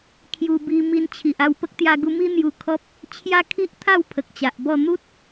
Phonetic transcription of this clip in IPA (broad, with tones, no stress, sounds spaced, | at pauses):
kʰ j u˧ b i˧ m i˧ n t͡ɕʰ i˨ ʔ a˥˧ w p ə˦ k̚ t̪ j a˧ ɡ u˧ m i˦ n̪ j u˧ kʰ ɔ˦ p̚ | t͡ɕʰ j a˦ kʰ i˦ ʔ t̪ʰ a˥˧ w pʰ ə˨ k̚ t͡ɕ a˨ ʔ b ɔ˥˧ n̪ u˦ t̚